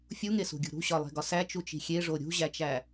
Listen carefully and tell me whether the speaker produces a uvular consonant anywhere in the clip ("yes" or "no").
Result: no